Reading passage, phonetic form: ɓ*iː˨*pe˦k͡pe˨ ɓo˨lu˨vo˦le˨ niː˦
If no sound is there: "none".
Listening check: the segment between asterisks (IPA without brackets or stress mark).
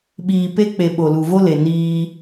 iː˨